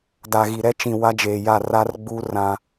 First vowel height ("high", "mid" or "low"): low